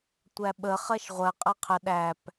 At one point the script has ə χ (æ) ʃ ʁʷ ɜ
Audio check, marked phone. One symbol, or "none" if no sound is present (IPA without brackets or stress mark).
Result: ɜ